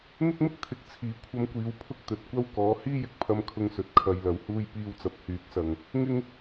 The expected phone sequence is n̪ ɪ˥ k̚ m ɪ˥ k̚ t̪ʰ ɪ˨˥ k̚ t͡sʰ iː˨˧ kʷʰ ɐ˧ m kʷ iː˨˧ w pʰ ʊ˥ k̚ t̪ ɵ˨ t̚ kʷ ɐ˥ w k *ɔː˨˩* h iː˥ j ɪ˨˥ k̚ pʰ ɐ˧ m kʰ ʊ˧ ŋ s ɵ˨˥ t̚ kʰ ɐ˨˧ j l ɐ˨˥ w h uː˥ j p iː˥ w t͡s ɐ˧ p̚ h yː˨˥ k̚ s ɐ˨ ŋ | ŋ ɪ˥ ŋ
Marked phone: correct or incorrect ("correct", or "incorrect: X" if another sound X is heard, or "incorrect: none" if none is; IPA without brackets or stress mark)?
incorrect: ɔː˨˥